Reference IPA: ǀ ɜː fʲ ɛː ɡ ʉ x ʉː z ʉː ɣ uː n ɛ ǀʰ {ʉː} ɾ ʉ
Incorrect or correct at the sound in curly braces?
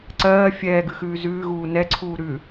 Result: incorrect: uː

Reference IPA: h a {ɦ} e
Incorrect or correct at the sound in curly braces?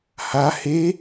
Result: incorrect: h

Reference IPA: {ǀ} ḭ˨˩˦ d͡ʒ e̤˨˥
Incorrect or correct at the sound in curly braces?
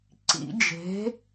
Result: correct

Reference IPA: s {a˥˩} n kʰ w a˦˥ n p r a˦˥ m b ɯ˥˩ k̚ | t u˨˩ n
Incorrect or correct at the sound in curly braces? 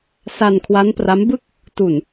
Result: incorrect: a˧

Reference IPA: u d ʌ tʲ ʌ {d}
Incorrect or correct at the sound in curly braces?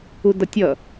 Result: incorrect: none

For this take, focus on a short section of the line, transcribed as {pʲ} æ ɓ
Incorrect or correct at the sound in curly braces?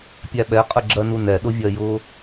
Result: correct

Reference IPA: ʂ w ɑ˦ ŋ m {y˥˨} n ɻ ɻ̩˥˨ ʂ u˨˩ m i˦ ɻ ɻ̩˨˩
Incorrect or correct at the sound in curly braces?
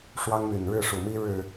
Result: incorrect: y˨˩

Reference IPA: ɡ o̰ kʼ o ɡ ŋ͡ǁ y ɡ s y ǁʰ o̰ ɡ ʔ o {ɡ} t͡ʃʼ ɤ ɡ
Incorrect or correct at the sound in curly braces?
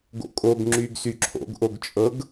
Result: correct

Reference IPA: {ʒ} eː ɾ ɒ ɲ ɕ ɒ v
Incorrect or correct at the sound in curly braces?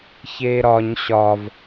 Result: incorrect: ç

